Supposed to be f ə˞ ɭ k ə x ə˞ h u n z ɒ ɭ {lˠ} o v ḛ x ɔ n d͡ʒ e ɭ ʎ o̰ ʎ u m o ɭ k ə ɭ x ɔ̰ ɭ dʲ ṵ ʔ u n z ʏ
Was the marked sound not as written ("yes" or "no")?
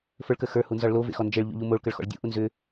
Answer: yes